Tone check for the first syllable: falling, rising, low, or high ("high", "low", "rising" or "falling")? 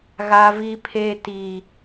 high